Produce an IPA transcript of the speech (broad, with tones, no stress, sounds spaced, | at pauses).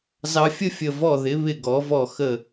z ɑ˧ fʲ ə˥ fʲ ə˧˩ v ɔ˧˩ ð ɪ˩˧ β ɪ˧˩ ɡ ɔ˩˧ v ɔ˧˩ x ə˧˩